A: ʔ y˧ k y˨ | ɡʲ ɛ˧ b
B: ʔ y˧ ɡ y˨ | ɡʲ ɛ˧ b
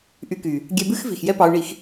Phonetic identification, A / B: A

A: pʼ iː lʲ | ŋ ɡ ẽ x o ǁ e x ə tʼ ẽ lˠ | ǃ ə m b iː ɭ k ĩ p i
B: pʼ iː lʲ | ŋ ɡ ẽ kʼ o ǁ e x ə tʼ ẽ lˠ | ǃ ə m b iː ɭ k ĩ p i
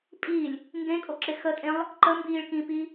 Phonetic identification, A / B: B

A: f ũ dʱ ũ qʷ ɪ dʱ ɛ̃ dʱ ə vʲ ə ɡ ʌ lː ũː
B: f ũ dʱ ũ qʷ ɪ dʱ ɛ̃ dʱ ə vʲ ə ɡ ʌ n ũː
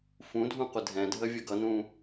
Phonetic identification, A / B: B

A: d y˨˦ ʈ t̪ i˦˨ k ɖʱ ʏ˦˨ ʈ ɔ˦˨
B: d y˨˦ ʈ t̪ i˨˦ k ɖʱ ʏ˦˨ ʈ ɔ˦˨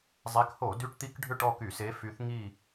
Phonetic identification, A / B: B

